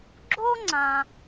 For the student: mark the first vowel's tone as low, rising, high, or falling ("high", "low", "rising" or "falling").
high